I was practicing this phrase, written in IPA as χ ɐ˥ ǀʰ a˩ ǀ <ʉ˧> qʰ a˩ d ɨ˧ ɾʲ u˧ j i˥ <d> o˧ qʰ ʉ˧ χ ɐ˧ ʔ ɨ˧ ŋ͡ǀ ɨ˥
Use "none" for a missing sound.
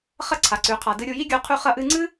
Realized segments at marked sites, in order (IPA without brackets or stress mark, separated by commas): ʉ˩, ɡʲ